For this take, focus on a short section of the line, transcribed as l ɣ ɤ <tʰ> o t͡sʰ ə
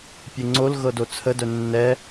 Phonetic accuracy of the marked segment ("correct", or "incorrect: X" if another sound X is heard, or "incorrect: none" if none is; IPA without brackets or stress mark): incorrect: d